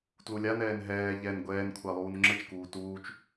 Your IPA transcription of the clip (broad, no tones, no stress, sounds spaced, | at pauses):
t l u lʲ a n ɛː n ɦ ɛː ʎ ɛ n ɡʷ ɛː n kʷʰ a lˠ uː n ŋ͡ǁ ə t͡ʃ k uː t uː t͡ʃ